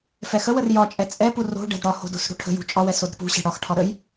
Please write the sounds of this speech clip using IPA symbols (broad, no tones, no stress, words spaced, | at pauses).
fɛxəwər jɒt͡ʃʼɛ t͡sʼɛpu ro̤ ɖɛ̤dɽɒho̤ do̤sɽo̤ʈʰə̤jṳ t͡ʃʼɒwɛ sodɾə̤pṳɕɛ̤ ɽɒxʈʰɒ ɾəj